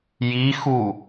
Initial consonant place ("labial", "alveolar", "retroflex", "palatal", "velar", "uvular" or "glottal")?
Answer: palatal